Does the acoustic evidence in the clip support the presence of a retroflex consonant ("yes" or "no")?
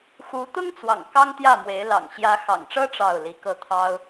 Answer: yes